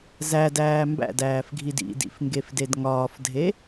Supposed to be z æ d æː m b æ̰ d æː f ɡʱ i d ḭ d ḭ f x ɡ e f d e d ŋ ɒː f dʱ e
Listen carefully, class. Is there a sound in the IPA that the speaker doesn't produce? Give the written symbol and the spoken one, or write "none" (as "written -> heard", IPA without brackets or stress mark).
x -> ŋ